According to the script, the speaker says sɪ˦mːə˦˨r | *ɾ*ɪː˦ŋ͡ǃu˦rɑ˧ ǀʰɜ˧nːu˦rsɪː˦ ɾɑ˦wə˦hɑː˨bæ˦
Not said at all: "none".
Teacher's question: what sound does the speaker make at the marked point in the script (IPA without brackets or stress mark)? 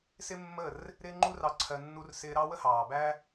ɾ